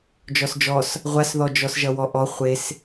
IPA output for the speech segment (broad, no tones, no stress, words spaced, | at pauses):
d͡ʒɔsd͡ʒɔs | ʁʷasðɔd͡ʒɔs ʒʌwɔʔɔ χʷes